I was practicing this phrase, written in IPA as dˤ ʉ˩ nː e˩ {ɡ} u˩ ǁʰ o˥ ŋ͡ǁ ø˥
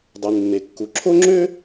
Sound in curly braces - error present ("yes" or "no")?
yes